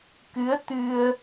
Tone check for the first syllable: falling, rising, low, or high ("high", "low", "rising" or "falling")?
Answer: rising